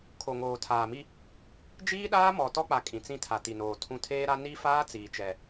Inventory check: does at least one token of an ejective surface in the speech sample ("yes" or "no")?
yes